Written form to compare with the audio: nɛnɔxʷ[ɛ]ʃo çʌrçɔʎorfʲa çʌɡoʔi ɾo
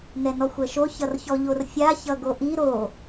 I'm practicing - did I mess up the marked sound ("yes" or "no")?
no